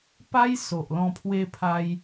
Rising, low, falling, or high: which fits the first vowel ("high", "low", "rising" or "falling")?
high